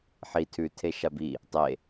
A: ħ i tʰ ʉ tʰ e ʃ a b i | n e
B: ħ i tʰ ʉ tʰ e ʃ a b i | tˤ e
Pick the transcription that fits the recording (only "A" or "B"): B